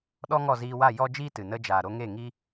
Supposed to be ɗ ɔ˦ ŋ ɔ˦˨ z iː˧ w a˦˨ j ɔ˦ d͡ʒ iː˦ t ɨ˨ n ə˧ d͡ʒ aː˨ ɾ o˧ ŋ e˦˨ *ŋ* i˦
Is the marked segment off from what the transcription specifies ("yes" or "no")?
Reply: no